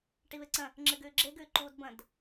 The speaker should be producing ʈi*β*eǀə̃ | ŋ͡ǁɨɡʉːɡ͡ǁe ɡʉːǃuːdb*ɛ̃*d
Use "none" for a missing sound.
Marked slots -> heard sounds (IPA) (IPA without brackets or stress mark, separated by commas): β, ə̃